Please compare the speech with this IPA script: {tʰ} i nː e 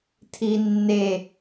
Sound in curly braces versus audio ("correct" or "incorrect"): correct